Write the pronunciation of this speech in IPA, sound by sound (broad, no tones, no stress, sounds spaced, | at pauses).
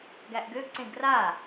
ɡ æ ʔ ɡ ø ɡ ǀ ẽ ɡ r a